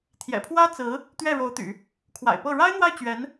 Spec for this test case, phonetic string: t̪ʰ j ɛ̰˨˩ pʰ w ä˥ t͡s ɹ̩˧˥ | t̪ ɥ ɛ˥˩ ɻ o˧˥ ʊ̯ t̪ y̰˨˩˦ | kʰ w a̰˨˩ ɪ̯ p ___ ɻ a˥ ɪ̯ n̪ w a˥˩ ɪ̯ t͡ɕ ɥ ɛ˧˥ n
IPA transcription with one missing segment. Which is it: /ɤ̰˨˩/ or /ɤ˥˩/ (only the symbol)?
ɤ˥˩